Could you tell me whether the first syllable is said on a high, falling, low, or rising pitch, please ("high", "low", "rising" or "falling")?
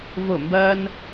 falling